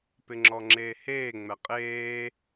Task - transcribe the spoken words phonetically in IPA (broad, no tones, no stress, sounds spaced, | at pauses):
p ɪ ŋ͡ǁ ɔ ŋ͡ǁ eː h eː ŋ͡m ɛ qʼ eː